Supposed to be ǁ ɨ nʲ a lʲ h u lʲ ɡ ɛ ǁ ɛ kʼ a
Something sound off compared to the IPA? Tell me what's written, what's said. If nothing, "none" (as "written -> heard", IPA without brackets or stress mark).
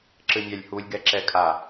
none